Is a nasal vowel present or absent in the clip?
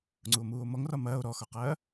absent